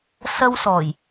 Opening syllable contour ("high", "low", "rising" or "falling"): high